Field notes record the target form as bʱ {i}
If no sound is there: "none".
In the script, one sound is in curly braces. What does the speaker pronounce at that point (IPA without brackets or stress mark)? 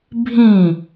ĩ